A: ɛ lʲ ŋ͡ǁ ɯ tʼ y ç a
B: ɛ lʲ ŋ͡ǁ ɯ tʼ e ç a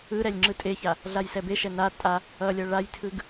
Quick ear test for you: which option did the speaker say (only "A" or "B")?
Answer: B